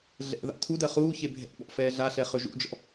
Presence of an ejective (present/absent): absent